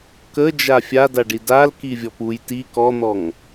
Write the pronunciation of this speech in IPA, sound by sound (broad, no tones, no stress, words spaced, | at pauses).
kə d͡ʒafʲadaɖi dal kivʲɔpuj ti kɔn̪ɔŋ